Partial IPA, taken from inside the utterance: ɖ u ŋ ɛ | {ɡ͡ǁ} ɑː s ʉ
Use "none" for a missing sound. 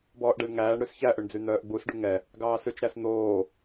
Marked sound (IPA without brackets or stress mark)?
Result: ɡ